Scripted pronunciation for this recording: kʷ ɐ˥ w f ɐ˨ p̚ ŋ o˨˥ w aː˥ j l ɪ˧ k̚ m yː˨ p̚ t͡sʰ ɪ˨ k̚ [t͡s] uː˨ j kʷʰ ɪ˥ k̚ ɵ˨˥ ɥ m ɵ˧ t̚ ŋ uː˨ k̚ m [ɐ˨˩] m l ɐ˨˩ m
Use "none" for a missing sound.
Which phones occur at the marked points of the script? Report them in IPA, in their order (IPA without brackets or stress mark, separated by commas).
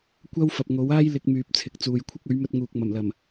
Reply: t͡s, ɐ˨˩